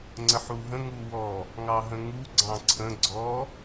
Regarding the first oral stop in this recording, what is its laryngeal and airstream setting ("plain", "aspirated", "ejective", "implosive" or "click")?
click